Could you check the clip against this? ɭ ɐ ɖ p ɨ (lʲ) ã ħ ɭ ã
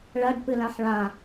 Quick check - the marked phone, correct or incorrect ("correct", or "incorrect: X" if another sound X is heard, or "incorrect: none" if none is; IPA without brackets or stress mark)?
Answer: incorrect: l